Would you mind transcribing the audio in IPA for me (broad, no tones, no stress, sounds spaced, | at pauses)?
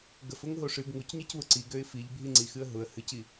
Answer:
ɡ ə f ʊ ŋ ɦ o ʂ ɨ ɡ ŋ u c ɲ i c β ʊ ǀ i ɡ ø ɪ̯ f i ʎ bʱ i ŋ͡ǀ i x ɨ ə̯ ɦ ʊ ə̯ h ɨ c i